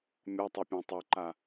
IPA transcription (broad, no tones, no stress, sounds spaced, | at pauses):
mʲ ɔ tˤ o pʲ ã tˤ o ǃ a